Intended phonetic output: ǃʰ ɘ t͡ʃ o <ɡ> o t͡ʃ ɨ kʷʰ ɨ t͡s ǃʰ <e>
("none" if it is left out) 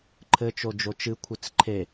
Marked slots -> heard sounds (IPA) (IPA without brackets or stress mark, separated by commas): d͡ʒ, e